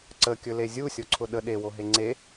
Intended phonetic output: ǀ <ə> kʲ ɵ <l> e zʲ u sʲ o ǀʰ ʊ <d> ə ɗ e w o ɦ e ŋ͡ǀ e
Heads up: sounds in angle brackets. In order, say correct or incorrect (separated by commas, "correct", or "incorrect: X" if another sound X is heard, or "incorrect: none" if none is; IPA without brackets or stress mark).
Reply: correct, correct, incorrect: ɗ